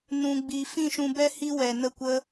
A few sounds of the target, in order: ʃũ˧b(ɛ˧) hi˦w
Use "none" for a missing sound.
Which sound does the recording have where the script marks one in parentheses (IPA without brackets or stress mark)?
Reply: ɛ˦